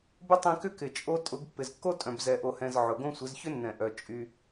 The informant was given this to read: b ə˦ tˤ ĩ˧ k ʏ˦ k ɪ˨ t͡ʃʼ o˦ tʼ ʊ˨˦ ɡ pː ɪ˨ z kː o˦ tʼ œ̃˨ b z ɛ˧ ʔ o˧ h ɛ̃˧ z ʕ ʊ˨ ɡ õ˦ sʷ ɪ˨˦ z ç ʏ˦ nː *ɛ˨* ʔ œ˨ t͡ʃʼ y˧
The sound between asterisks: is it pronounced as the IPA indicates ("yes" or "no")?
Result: no